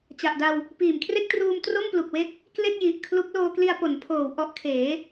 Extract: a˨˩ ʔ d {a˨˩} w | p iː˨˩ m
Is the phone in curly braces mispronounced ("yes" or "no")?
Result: yes